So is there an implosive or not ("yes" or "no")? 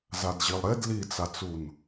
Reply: no